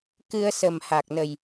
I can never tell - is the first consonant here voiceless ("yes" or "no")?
yes